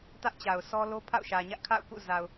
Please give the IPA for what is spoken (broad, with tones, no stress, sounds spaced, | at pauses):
t ä˦ ʔ t͡ɕ a˨ ʊ̯ sʰ ɔ˦ l o˦ pʰ a̰˦˨ ʊ̯ ʃ ä˨ ɲ ä˦ ʔ kʰ a̰˦˨ ʊ̯ k ṵ˦˨ z a˨ ʊ̯